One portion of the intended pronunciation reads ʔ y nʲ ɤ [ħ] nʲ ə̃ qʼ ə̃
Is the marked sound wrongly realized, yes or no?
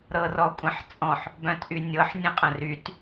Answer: no